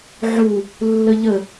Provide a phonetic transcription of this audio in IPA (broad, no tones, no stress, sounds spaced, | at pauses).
ʕ u | lː ə ʎ ə